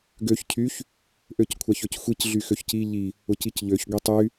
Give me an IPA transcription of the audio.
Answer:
ɡøç cʰyç | ʔøckʷʰaçøcxʷic ɮyxøçci ʎi | ʊcicʎøç ɡʷitˤy

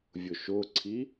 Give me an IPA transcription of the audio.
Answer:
vʲʊʃʊǀʰi

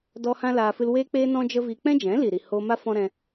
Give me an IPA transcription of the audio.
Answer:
dɔ˧ hã˦laː˧ fɨ˧lweː˦k͡peː˦ nɔ̃˦d͡ʒə˦vi˧ k͡pɛ̃˦d͡ʒɛ̃˨˦li˨ɾi˨ ho˧ma˦ fɔ̃˦ɾɛ̃˧

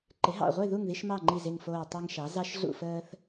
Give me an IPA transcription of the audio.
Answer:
ǃɪ˩˥ɦɑ̰˧˩ʁʷe˥˨ ðu˥˨ŋði˦ʃmɑ˥˨ŋ͡ǃi˧˩ zɪ˧˩ŋfoː˧˩ tˤɑ˦ŋʃɑ˩˥ zɑ˦ʃɮṵ˥˨fəː˦θ

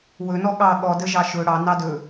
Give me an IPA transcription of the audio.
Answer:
wɵnɔ ɠɑ ɠɔdə ʒɑʃɵ ɽɑ nɑdɵ

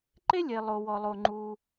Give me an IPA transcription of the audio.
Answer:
ǃe˥lʲe˩lˠo˩ wɔ˩lˠo˩ ŋ͡ǃu˩

